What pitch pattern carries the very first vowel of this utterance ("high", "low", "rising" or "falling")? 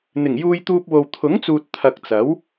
low